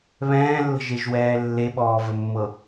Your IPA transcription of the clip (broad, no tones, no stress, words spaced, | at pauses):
βɛ̃ːlːə̤ʒeʒwɛː lːeɓɔːvəmːɤ